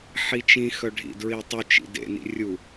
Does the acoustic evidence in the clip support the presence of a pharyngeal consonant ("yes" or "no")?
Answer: yes